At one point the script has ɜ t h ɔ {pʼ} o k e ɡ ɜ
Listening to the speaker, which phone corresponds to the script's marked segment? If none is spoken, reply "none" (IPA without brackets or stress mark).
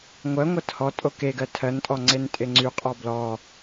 tʼ